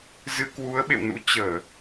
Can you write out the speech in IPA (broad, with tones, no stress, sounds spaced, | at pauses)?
z ɨ˧ k w u˨˦ ə̯ ɓ ḛ˧˨ w n ṵ˧˥ t͡ɕ əː˧˩˨